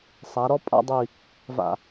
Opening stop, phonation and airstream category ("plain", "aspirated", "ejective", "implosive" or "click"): ejective